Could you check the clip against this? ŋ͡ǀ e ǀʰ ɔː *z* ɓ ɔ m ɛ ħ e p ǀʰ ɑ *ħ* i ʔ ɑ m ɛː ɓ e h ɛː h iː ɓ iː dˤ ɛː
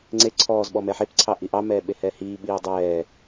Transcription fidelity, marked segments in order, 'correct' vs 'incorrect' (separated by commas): correct, incorrect